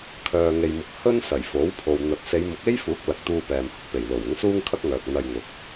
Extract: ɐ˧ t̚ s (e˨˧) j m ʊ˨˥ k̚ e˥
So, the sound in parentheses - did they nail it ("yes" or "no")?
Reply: yes